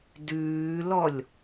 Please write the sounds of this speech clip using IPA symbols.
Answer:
d ʉː l ɔ lʲ

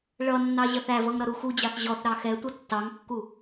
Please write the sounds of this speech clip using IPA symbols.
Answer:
ɭ ʌ nː ɑ ʑ ʌ θ æ v ʌ ŋ ɾ ʌ ɾ u x u d͡ʑ ɑ θ ʑ ɔ θ ɾ ɑ x ɛ tʷ ʌ tː ɑ ŋ kː u

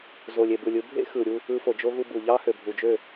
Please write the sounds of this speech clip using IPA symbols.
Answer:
z o˨ lʲ e˨ b ɯ˨ lʲ ɯ˧ bʱ ḛ˦ x ɯ˨ ɾʲ u˧ | ɯ˧ f o˨ d͡ʒ o˦ ɣ u˧ b u˨ ʎ ɑ˦ h ø˨ bʱ u˨ d͡ʒ ø˦˨

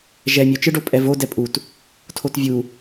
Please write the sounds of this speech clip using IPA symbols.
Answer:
ʒ ɛ mʲ o t͡ʃ ɯ ɖ o pʼ ɛ v o d ɛ pʼ u t | tʰ o t vʲ u

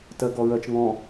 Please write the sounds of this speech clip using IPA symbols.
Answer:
t ɜ ɡ ɔ ɹ ɜ t͡ʃ ŋ ɔ̃

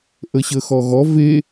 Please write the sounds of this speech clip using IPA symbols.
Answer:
ʔ ə ɕ ə x ɔ ɣ ɔ v e

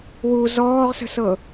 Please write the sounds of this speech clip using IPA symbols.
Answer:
w u z ɔː ʁ s ə̤ s ɤ

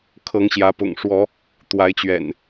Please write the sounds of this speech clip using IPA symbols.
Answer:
kʰ ɤ˨˦ ŋ ɕ j ä˨˦ p ʊ̰˨˩ ŋ ʂ w ɔ˨˦ | t̪ w a˨˦ ɪ̯ t͡ɕ ɥ ɛ̰˨˩ n

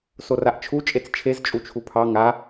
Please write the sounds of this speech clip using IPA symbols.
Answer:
s o r a ʔ t͡ʃʰ u t͡ʃʼ e t͡s t͡ʃʰ e z t͡ʃʼ u t͡ʃʰ u pʰ ɑ ŋ a

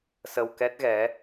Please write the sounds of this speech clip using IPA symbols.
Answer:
s ə˧ w k ɛ˦˥ t̚ ɣ ɛ˨˦

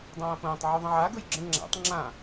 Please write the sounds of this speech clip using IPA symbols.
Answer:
dˤ ãː ɐ̯ p ə̃ː tˤ ʕ u ðˤ ə̃ ʕ a ɡ ɵ j ɡ͡ǁ ə̃ ŋ͡ǁ a̰ tˤ ŋ͡ǁ ã

